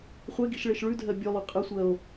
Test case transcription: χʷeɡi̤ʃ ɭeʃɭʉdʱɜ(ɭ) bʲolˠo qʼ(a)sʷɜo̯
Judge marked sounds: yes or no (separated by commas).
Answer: no, no